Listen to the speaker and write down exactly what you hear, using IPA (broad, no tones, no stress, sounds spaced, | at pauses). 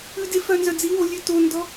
ʉ d e f œ n z œ d͡z i w o lʲ ʉ t o n d ɔ